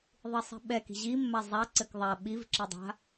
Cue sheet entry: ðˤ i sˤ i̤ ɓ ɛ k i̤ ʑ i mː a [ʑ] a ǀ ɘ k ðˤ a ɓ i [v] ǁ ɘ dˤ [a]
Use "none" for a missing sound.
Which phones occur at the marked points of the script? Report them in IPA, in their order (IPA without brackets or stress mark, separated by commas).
zˤ, v, a̤